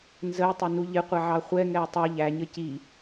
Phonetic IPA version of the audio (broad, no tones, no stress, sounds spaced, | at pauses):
n z ə j tˤ ʊ n u ʎ ɪ qʷ ɛ ʕ ɑ χʷ ɛ ŋ ɛ o̯ tˤ ʌ ʎ æ ɲ ə c i